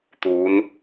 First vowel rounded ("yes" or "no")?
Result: yes